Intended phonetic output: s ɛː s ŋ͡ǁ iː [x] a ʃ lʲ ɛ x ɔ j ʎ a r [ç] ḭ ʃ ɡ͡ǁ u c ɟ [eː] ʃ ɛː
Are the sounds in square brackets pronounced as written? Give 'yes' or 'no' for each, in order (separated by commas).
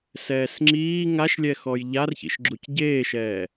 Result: no, yes, yes